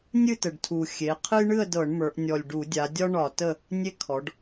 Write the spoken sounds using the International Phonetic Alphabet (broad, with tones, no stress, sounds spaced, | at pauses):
nʲ ɨ˥˨ t ə˨˩ ɖ tʰ u˨˩ xʲ e˩˧ qʰ ɨ˦ j ɳ ɨ˥˨ ə̯ d ɤ˧˩˧ ɳ m ə˞˩˧ ʔ nʲ ɔ˨˩ lʲ ɖ u˧˩˧ dʲ a˩˧ dʲ ɒ˦ ɳ ɒ˧˩˧ t ə˥˨ | nʲ e˦ kʰ ɔ˩˧ ɖ